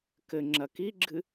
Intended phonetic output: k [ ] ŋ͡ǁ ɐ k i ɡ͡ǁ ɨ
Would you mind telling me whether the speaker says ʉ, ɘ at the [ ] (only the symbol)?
ɘ